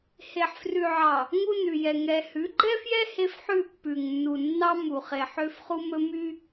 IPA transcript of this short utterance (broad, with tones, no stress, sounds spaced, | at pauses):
h e˨ ħ f r ʉ˨ ʕ ɑ˨ | ŋ u˦ n ʉ˨ j ɛ˨ ŋ ɛ˨ h ʉ˨˦ ɡ͡ǃ ɛ˦ f j ɛ˦ h e˦ f ħ ʉ˦˨ pː ʉ˨ ŋ nː u˨ nː ɑ˦ m u˨ χ e˨ ħ ø˦ f χ u˦ m ɵ˦ m y˦